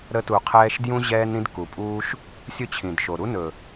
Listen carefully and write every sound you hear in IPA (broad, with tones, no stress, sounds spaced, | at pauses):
ɾ ə˧ t u˨ qʰ ɛː˧ ʃ d j ũ˧ ʑ ɛː˦ n ɾ ĩ˧ d k u˨ pʼ uː˦ ʃ | sʲ ɵ˦ t͡ɕʰ ĩ˨ d ʃ o˨ ɾ u˦ n ɵ˨